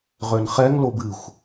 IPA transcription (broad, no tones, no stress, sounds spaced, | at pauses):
ʁ ø n χ ɛ ŋ l o b ɨ xʷ